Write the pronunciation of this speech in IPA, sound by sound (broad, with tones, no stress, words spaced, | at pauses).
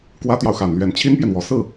kwä˥t̪jɑ˨ʊ̯xa˨˩nlɥɛ˧˥n t͡ɕʰi˥npjɛ˨nwɔ˨˩ sɹ̩˥˩